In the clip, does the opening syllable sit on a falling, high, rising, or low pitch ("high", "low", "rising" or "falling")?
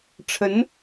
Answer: rising